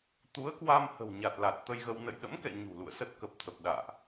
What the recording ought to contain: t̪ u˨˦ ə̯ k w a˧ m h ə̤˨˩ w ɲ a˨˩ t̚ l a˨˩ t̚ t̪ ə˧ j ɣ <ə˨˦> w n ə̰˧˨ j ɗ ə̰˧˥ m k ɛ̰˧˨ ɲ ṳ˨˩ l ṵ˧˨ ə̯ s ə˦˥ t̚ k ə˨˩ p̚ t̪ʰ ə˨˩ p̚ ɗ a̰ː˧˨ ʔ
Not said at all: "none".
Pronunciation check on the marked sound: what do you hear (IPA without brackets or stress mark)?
ə˧